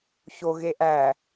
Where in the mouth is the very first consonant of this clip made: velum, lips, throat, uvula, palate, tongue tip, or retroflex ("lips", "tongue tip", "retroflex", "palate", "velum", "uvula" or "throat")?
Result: palate